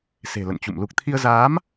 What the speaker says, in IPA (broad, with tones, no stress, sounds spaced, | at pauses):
s e̤˨˩ l ə̰˧˨ n t͡ɕ ṵ˧˨ m l u˨˩ k̚ t̪ʰ i˧ ə̯ z aː˨˦ m